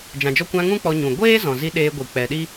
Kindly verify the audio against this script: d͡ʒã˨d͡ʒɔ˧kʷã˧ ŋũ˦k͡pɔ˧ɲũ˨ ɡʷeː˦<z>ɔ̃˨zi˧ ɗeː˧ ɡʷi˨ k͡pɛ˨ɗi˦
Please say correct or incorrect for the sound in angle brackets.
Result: correct